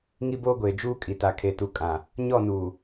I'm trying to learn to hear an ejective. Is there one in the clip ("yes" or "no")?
yes